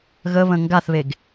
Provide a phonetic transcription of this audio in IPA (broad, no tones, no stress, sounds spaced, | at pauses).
ɣ ə β ə̃ ŋ ɡ a θ β e ɡ